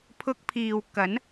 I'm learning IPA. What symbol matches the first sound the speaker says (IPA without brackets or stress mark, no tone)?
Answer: pʰ